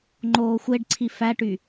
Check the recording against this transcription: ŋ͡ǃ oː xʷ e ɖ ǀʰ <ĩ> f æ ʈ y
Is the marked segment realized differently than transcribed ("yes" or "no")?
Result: yes